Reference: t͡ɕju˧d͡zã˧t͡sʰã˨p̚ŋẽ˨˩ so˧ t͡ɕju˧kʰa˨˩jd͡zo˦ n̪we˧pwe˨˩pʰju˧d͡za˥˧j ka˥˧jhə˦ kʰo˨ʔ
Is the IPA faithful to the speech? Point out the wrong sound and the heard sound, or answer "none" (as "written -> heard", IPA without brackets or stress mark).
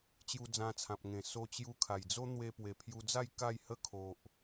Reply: none